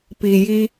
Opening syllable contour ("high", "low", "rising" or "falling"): low